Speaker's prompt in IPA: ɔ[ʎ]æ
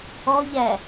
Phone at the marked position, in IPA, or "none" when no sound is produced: ʎ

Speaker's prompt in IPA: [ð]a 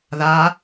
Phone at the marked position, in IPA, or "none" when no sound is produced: ð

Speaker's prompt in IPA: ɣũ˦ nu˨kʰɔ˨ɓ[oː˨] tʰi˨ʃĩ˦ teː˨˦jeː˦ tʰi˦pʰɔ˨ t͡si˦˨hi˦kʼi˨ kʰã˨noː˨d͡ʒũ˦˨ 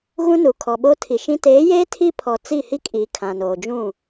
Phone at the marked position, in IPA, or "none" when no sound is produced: oː˦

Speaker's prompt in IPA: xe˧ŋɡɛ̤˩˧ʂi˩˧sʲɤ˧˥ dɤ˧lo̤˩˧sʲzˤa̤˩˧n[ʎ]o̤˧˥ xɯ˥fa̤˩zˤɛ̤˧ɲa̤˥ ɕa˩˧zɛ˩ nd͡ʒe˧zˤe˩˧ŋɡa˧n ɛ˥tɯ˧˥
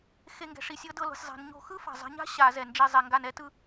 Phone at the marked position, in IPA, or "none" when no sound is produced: ɲ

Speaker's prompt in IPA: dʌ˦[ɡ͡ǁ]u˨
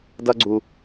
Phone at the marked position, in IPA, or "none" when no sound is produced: ɡ͡ǀ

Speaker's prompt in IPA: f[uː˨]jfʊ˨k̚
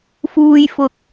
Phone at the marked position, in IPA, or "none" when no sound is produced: uː˨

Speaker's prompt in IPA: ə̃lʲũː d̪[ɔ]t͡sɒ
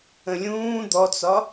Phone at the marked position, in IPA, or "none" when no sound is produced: ɔ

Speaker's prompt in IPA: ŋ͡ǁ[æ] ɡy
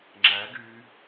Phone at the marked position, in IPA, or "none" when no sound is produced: æ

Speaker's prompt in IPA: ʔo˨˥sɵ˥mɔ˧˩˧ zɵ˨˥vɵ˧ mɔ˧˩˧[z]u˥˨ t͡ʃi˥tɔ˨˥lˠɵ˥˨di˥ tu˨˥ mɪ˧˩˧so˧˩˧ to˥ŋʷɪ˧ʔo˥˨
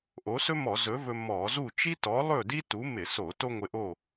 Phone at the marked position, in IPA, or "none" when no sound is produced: z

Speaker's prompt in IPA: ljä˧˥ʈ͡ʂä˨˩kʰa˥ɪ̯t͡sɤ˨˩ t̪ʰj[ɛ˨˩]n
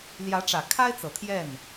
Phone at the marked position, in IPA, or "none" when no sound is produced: ɛ˥˩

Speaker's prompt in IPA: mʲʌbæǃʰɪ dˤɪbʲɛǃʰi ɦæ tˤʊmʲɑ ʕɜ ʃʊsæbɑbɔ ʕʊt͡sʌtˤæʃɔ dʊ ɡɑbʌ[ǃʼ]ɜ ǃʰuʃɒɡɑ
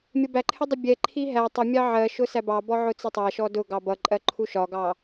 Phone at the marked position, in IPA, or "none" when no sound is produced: ǃʼ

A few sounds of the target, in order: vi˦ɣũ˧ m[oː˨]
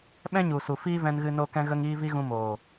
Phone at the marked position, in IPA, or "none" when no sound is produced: oː˨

